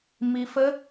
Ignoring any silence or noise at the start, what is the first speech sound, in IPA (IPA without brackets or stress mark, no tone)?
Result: m